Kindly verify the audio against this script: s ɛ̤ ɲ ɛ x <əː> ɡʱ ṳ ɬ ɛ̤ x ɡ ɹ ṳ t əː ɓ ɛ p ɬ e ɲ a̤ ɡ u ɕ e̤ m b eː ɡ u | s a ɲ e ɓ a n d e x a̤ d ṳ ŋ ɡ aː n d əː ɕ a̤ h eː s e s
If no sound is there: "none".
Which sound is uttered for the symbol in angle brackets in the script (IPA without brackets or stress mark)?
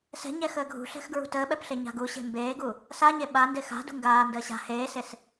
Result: əː